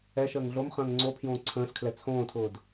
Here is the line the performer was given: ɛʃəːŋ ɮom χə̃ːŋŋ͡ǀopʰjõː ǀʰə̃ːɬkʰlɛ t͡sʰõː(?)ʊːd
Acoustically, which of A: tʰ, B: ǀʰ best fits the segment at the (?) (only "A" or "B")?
A